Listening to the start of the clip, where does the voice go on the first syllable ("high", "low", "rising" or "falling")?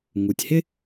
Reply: low